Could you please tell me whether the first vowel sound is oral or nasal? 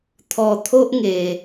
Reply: oral